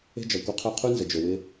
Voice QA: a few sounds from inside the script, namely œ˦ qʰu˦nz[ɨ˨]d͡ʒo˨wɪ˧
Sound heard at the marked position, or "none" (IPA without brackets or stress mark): ə˨